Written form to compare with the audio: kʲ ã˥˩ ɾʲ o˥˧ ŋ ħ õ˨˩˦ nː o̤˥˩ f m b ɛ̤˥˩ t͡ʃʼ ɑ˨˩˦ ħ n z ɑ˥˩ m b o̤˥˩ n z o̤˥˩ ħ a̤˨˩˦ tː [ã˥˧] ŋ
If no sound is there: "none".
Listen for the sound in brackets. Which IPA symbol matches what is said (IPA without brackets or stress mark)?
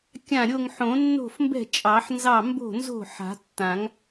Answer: ã˨˩˦